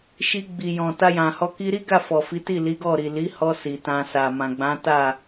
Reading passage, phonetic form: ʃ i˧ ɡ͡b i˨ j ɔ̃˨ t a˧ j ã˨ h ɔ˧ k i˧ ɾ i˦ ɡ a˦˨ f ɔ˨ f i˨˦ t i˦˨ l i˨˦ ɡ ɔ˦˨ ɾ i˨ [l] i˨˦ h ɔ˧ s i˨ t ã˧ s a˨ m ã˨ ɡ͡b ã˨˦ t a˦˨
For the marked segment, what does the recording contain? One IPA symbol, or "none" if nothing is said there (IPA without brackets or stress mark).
l